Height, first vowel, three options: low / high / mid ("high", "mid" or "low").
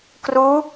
high